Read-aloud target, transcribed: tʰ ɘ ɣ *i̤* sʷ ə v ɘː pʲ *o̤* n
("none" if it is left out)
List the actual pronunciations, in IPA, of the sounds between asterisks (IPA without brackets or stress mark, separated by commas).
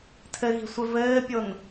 i̤, o